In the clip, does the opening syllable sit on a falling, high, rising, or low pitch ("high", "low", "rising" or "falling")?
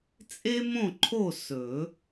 high